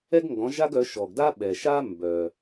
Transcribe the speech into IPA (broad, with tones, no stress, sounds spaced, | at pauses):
ɛ˥ ɡ ŋ ɡ ɔ̃˨˦ ʒ a˥ ɡ œ˨˦ ʃ ɔ˨ ɡ d a˥ ɓ ɛ˨ ʃ a˥ m b œ˨